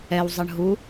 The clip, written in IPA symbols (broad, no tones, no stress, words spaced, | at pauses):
ɛw zˤɤɳɦu